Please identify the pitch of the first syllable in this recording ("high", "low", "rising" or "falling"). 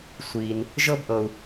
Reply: low